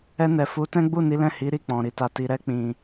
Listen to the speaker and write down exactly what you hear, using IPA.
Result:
ɛ˧ n ɛ˨ f u˨˦ t ɛ̃˦ ɡ͡b u˦˨ n i˨˦ l ɛ̃˦˨ h i˨˦ ɾ i˦ k͡p ɔ̃˧ ɾ i˦ t a˧ t i˧ ɾ ɛ˦ k͡p ĩ˦

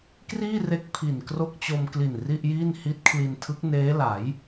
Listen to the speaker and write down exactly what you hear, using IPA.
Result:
k r iː˥˩ r e˦˥ k̚ pʰ i˨˩ n k r o˥˩ k̚ t͡ɕ o˧ m k l i˨˩ n r i˥˩ ʔ j iː˥˩ n h i˦˥ t̚ kʰ l i˧ n tʰ ɯ˦˥ k̚ n eː˦˥ l a˩˦ j

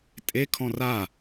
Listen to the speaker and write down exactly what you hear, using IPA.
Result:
tʼ e kʰ ɔ̃ r a

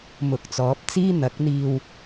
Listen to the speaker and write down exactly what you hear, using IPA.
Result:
m ʊ˨ k̚ t͡s ɔː˨˥ p̚ t͡s iː˥ n̪ ɐ˨˥ k̚ n̪ iː˧ w

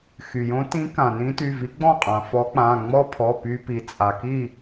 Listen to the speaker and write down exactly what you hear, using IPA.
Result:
x y˩ j õ˧˥ t ĩ˧˥ k ã˩ n ĩ˧˥ t y˩˧˩ v i˧˥ ɡ͡b ɔ̃˥˨ qʼ ã˩ f ɔ˧˥ k͡p ã˩˧˩ ŋ͡m ɔ˥ pʰ ɔ˩˧˩ p y˧ p i˩ t͡sʼ a˩ k i˥˨

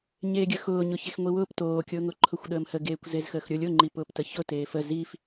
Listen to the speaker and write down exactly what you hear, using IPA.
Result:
ɲ eː ɡʲ ə x ʊː ɲ ʊ ç e x ŋʷ i w ʊː p t oː kʲ ʊː ŋ ʊ ǃʰ ʊ xʷ ɗ əː m h ə ɡ eː kʷ z e z x əː x ɾʲ ʊ lʲ ʊ ŋ͡ǃ i p ʊː p t ə ç ʊ t eː f ə z i f

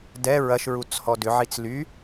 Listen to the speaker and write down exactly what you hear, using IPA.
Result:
d ɛ ɹ ɐ ʃ ɹ u t͡s h ɔ d ʏ ʕ i t͡s l y

